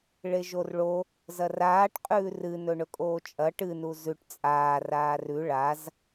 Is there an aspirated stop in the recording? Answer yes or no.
no